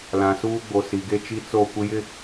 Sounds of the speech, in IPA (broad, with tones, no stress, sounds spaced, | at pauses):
l ã˨ s uː˦ ɡ͡b o˨ s i˨ ɡ e˦ t͡ʃ i˦ t͡s o˦˨ kʷ ɪ˦ j ɪ˦